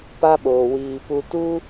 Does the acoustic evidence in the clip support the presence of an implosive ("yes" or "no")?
yes